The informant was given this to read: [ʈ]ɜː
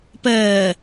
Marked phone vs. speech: incorrect: p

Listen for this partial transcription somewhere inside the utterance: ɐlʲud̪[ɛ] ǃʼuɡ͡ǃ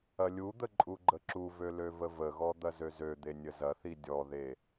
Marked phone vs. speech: incorrect: ə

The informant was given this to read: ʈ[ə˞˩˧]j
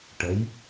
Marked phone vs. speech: incorrect: ə˩˧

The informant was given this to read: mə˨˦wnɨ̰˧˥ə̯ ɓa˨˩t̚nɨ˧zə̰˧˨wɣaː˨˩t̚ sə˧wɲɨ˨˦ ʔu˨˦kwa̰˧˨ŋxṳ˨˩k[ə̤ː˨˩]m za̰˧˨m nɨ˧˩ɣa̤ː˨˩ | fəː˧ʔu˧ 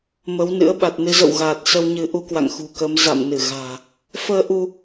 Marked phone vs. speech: incorrect: əː˨˦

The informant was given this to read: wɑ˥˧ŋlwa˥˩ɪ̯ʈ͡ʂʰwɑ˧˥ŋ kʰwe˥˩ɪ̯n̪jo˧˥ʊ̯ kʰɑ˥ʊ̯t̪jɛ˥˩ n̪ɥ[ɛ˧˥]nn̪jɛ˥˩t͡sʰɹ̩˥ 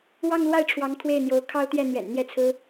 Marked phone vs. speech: incorrect: ɛ̰˨˩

